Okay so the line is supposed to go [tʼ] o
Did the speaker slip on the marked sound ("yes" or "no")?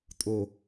no